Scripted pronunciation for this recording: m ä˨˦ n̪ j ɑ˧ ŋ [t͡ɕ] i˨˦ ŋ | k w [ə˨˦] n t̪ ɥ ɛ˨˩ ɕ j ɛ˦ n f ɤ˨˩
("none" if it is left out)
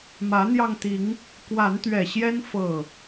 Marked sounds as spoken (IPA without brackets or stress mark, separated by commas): t̪, a˨˦